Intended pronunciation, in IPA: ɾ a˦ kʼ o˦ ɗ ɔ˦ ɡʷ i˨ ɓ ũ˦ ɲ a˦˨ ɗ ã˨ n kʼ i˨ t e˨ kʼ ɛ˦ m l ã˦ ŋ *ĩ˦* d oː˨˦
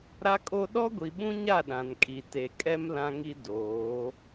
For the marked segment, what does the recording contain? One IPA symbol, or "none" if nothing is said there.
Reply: i˦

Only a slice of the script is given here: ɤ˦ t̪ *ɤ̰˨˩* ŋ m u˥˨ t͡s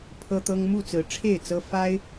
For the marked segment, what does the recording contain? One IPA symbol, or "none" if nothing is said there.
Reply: ɤ˦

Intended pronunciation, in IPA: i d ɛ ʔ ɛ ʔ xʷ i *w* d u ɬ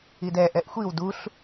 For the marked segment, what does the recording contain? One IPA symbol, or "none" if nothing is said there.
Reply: w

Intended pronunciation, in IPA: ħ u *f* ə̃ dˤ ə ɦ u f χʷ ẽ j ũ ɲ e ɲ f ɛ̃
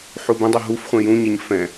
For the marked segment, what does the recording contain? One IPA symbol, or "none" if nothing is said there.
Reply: b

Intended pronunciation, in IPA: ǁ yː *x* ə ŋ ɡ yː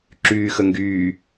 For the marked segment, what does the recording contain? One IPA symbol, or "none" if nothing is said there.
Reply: x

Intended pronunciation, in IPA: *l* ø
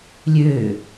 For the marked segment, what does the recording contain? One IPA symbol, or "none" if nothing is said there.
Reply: lʲ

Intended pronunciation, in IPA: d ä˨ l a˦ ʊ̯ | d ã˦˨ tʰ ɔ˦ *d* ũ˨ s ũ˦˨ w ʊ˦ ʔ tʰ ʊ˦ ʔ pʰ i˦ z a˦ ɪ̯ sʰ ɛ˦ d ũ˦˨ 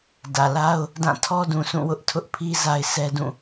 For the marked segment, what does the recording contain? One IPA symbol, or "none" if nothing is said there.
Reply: d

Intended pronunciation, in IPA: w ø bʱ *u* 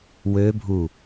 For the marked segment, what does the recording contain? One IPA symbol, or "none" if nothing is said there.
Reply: u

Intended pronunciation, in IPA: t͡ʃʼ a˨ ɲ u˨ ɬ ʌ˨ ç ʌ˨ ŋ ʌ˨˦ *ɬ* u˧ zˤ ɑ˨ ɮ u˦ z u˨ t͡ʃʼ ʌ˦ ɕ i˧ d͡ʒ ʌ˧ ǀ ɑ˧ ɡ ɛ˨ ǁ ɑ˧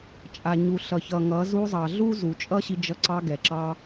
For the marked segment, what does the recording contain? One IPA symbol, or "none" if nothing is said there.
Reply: z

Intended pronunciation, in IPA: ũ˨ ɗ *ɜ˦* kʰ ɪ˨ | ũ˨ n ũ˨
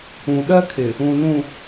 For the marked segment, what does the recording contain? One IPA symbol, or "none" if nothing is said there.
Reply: ɜ˦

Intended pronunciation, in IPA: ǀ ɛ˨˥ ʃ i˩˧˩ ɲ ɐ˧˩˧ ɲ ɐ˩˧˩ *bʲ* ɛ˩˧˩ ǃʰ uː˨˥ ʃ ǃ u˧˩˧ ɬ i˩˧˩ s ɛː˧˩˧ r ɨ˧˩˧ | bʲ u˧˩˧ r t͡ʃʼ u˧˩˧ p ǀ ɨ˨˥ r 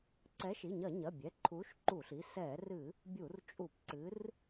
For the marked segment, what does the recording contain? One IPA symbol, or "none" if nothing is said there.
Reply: bʲ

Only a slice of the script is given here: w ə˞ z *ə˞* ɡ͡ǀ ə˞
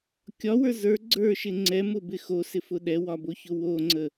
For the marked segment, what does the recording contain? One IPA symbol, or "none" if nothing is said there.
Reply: ə˞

